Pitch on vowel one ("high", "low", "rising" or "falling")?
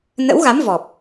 rising